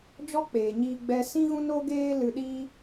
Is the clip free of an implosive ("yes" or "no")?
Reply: no